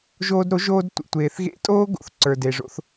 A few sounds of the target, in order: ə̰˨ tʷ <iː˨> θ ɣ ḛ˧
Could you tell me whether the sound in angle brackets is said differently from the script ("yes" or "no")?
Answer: yes